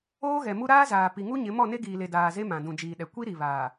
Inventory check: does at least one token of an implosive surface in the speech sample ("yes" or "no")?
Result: yes